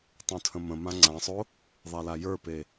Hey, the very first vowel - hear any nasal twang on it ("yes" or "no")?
yes